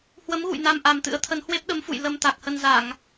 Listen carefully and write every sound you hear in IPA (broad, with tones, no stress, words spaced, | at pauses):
hwə˨˦mɣṵ˧˨j na˧mʔa˨˩mt̪ɨ̰˧˥ə̯t̪ʰə˨˦n hwe˦˥p̚ɗə˨˦mfṵ˧˨j lə˧mt̪a˨˩k̚hə˧n za˧˩˨ŋ